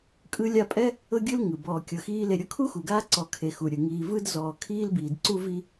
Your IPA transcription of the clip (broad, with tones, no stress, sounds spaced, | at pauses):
kʼ ɯ˦ lʲ a˦ pʼ ɛ˥ | ɤ˥ ɡʲ ɯ˥ l ŋ ɯ˩ b ɔː˨ kʲ ɤ˨ x iː˦ l e˨ ɾʲ ɤ˦ kʰ u˥ x u˩ ɡ aː˦ ǀ ɔ˨ kʰ e˨ x u˩ ɾʲ ɯ˩ ŋ iː˨ v ɯ˦ d z ɔː˨ kʰ iː˥ l b iː˩ d ǀ u˥ v i˥